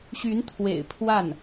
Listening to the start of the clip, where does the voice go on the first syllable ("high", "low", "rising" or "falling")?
rising